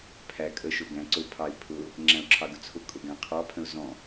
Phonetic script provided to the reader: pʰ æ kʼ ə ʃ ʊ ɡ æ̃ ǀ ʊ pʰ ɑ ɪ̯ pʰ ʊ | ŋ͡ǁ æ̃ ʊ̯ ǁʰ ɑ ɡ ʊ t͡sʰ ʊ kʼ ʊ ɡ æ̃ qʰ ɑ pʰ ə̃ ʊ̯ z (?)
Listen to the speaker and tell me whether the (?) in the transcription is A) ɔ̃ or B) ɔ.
A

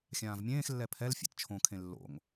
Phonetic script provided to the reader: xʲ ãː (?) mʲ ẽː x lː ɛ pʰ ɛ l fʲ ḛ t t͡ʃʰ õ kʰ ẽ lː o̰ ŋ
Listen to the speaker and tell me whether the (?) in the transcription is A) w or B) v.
B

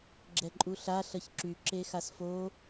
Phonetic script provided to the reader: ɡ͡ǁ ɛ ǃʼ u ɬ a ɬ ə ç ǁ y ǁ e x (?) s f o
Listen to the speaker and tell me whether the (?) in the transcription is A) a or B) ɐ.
A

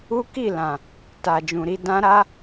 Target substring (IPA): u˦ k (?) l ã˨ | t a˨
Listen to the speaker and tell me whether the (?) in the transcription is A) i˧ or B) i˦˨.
B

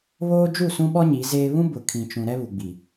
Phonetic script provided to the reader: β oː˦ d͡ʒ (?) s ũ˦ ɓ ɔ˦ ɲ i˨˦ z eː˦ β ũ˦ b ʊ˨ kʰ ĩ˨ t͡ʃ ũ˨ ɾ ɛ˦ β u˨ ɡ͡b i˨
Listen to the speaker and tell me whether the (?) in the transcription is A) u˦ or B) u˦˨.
B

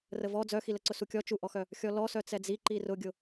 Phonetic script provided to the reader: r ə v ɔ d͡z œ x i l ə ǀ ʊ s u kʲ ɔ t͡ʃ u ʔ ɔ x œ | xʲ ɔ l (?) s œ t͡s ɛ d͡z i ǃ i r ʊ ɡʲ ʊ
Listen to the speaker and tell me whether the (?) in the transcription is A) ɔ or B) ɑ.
A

